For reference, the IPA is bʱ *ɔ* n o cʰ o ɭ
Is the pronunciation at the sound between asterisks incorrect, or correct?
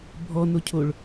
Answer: correct